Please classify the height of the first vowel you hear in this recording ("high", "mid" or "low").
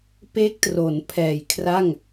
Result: mid